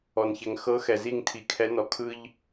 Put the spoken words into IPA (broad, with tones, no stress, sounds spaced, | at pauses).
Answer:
ɔ˨ n ç ɛ˨ ŋ x ɤ˨˦ x ɛ˨ z i˦˨ ŋ tʰ i˨ kʰ ɛ˨˦ n ɔ˨ kʰ ɯ˦ ʎ